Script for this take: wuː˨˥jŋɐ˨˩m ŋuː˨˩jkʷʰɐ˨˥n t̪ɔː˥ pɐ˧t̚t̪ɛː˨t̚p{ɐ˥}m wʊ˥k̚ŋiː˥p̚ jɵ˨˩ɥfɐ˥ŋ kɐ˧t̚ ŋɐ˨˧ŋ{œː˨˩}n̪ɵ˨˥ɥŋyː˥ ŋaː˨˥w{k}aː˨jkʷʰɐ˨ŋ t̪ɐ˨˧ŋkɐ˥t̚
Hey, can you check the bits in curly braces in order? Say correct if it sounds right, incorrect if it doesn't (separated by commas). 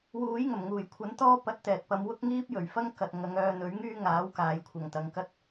incorrect, incorrect, correct